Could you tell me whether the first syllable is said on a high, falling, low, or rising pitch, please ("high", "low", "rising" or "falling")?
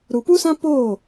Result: low